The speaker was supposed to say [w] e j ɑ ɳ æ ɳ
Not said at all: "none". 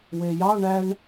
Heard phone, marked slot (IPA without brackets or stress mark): w